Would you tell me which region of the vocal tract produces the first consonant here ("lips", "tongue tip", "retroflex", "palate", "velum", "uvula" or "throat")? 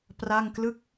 lips